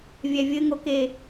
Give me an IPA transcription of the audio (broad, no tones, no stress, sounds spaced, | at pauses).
vʲ ɛ vʲ ɘ ŋ o k e